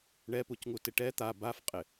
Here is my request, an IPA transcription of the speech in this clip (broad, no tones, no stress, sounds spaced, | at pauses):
ɳ ɛ p u c ŋ u t ɪ ʈ ɛ t̪ a b a f qʼ ɪ